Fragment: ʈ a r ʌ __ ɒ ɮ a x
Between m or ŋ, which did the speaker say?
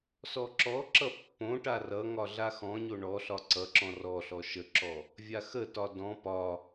ŋ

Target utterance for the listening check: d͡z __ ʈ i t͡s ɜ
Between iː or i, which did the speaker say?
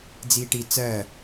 iː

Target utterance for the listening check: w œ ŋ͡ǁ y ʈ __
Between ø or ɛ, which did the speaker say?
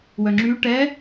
ɛ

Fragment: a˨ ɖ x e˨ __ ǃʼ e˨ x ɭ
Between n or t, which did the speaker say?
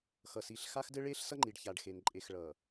n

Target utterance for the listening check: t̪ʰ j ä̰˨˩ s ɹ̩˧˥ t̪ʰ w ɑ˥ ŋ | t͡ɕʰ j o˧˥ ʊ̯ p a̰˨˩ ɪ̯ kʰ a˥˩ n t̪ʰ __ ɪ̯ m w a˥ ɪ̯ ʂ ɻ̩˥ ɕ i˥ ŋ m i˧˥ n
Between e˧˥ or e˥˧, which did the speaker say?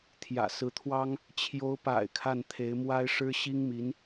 e˧˥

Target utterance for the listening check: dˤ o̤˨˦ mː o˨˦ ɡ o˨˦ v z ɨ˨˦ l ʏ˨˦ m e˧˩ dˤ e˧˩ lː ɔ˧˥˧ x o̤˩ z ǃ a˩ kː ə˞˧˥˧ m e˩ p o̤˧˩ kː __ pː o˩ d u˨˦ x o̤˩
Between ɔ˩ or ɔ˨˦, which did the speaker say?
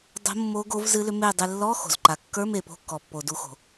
ɔ˩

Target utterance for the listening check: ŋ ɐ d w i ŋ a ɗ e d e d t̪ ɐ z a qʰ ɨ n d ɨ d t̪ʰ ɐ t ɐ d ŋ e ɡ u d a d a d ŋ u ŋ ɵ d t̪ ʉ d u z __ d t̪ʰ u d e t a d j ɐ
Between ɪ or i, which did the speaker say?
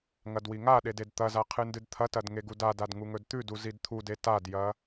i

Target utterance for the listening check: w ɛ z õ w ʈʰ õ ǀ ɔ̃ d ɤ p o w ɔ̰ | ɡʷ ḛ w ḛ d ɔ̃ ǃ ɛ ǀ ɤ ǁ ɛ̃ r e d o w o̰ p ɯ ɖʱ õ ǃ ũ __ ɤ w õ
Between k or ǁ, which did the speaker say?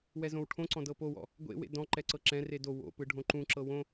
ǁ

